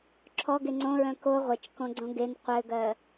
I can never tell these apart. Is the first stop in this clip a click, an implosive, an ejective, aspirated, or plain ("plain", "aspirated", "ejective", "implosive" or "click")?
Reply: click